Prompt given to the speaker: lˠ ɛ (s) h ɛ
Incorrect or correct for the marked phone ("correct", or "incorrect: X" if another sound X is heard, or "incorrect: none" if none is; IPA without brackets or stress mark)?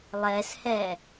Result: correct